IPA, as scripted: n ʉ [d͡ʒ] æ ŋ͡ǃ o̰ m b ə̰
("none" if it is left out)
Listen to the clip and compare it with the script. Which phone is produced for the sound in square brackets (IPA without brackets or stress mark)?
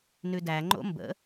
d